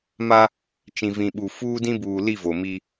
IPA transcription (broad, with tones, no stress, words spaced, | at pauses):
ma˦ | t͡ʃĩ˨vĩ˨ɓu˨ fuː˦dĩ˦buː˨li˦˨ vo˨miː˦